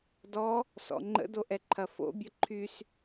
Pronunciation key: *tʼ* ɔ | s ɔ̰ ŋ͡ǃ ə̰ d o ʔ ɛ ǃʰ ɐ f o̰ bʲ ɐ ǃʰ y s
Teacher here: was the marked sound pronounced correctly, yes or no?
no